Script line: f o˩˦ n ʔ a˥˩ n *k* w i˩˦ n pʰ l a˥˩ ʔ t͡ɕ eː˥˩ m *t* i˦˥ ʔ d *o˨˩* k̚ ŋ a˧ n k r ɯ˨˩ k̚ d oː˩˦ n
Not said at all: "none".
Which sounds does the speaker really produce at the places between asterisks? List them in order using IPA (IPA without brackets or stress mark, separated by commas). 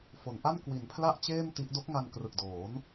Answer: k, t, o˦˥